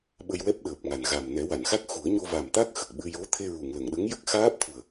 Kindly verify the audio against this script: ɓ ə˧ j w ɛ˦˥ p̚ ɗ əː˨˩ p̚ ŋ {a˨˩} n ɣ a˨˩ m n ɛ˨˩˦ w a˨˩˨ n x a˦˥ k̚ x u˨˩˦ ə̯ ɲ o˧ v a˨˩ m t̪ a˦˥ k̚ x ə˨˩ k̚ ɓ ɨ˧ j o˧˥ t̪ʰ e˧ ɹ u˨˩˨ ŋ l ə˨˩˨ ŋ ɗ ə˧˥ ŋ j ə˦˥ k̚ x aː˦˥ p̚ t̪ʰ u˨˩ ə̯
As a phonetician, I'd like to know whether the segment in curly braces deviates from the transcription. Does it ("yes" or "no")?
no